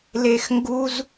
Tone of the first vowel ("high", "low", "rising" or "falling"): high